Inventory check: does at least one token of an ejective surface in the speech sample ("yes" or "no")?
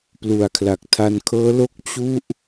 no